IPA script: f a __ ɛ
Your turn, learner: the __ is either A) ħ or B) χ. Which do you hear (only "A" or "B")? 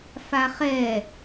B